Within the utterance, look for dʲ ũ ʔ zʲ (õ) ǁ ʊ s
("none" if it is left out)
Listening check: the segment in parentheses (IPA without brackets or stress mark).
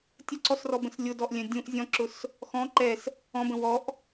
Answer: ɔ̃